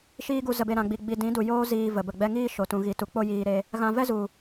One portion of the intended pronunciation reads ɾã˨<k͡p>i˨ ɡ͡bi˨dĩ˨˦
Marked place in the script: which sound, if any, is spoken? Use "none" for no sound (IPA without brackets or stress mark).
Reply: ɡ͡b